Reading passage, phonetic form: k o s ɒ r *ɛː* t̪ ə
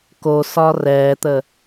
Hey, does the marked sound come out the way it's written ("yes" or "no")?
yes